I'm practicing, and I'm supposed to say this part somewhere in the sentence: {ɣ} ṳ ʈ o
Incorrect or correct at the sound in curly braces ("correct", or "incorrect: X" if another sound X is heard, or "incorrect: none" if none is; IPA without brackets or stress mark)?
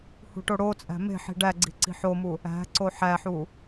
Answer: incorrect: h